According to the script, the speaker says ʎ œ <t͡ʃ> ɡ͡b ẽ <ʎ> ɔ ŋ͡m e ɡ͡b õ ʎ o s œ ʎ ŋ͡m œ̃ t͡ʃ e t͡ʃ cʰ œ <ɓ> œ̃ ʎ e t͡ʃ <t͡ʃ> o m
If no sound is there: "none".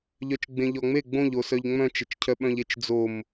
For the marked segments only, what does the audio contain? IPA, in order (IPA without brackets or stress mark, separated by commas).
t͡ʃ, ʎ, ɓ, d͡z